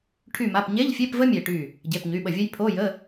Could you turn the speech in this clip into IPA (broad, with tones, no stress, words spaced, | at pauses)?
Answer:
ʈʰy˧˩ma˩˧˩pɲe˧˥˧ʎfʲe˧˥˧p və˥mʲe˧˩ʈy˧˩ | ɟe˩˧˩pɲy˩˧˩ɓə˧˩ vʲə˥j pʰo˧˥˧jə˧˥˧